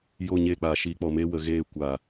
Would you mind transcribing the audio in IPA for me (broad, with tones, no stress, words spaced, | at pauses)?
jo˦˨ ɲeː˦˨k͡paː˨ ʃiː˧k͡pɔ˨meː˦ wə˨ɣeː˦˨ kʷaː˨